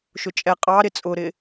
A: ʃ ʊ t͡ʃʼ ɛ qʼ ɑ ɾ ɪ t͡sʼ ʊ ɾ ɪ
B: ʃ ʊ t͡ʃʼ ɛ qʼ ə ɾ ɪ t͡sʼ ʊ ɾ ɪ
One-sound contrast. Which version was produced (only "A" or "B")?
A